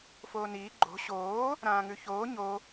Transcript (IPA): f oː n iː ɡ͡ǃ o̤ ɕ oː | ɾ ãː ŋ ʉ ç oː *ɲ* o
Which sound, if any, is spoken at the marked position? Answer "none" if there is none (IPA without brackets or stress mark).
ɲ